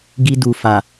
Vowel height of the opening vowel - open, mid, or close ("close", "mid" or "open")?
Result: close